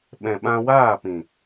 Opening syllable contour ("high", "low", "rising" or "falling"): low